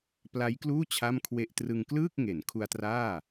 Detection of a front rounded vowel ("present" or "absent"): absent